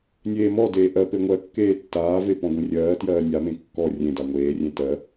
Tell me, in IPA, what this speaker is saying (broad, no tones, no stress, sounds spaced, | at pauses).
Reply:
nʲ eː m ɔ d eː ʔ ɜ p e ŋʷ ɜ kː eː tː aː v e p ɔ̃ ɡʷ ẽ rʲ ɜː t j ɜː nʲ a m ẽ kː ɔ rʲ ẽ d a ŋʷ eː rʲ ẽ t ɜ